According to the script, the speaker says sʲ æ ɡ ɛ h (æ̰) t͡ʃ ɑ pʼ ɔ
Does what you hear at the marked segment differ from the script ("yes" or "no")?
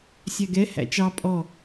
no